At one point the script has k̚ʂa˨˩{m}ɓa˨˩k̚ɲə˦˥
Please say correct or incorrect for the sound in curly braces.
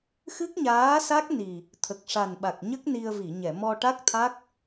incorrect: n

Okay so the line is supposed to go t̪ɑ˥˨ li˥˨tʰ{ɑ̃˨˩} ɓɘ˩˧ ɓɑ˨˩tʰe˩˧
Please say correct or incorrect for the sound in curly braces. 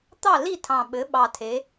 correct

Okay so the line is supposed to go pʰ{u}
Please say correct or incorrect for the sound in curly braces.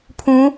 incorrect: ũ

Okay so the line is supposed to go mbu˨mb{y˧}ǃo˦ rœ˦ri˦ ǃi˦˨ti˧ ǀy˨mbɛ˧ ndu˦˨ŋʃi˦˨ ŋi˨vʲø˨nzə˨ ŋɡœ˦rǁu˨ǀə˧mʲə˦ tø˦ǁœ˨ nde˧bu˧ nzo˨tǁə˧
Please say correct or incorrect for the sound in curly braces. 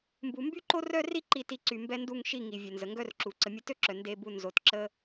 incorrect: y˦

